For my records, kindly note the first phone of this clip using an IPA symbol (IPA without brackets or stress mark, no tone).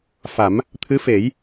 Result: f